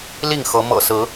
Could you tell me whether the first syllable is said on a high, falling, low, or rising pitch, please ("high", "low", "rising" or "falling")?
falling